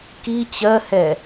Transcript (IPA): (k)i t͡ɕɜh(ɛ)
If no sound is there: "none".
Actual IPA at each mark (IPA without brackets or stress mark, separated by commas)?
k, ɛ